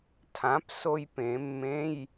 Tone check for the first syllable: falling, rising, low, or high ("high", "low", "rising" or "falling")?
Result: rising